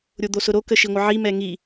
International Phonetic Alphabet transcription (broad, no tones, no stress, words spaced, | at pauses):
ɾʲod̪osʊɾo kəʃiŋʷəʕi mɛŋi